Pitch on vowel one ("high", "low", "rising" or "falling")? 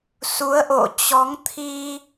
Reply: rising